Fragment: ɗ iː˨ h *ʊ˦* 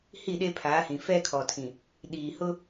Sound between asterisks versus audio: correct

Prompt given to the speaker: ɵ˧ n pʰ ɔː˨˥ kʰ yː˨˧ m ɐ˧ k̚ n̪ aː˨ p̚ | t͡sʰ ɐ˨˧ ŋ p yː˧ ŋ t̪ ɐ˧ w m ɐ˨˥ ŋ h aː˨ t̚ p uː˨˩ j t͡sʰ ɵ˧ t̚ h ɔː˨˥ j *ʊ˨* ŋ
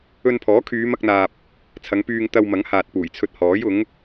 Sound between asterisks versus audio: incorrect: ʊ˨˥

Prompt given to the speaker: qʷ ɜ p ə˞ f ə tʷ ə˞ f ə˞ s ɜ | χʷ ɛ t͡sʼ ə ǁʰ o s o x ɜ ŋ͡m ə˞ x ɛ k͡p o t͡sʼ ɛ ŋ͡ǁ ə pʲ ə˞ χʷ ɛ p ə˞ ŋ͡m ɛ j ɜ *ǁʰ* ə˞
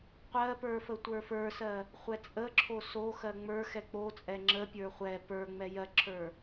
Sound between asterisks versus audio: correct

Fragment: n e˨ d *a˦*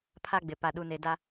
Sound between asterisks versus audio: correct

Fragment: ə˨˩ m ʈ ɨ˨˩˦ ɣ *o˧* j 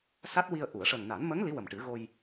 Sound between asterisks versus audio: correct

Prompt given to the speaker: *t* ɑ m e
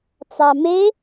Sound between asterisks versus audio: incorrect: t͡s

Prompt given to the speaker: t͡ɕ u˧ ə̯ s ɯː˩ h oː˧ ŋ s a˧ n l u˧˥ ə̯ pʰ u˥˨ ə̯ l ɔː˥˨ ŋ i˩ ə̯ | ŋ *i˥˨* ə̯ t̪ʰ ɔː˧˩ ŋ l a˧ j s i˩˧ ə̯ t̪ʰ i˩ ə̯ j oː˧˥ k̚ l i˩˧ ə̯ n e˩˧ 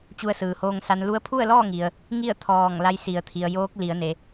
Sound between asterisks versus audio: correct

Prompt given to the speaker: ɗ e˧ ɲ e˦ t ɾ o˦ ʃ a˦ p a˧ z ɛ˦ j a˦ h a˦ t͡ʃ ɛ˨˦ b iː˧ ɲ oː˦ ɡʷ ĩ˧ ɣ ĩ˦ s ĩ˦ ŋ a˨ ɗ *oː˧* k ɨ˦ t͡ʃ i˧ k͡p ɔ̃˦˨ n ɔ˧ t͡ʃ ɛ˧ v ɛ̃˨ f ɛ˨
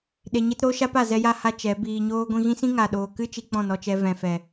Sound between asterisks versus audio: incorrect: oː˨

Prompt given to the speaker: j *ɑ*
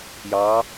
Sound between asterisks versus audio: correct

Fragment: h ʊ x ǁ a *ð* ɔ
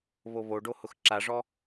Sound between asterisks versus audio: incorrect: ʐ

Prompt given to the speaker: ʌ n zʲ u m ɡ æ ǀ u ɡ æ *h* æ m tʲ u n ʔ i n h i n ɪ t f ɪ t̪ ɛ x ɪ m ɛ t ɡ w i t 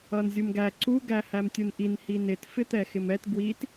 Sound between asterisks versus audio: correct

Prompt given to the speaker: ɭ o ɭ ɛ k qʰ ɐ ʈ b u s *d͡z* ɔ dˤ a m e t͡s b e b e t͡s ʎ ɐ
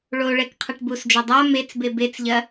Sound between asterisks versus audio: incorrect: d͡ʒ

